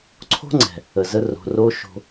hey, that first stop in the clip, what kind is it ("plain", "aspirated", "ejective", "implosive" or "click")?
click